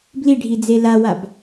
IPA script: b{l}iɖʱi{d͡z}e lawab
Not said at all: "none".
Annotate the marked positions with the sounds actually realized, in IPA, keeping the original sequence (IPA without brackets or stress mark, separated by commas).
l, d͡z